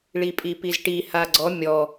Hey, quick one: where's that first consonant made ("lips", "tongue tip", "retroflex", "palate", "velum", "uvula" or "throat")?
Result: retroflex